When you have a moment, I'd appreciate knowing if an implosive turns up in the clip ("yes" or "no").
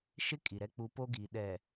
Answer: yes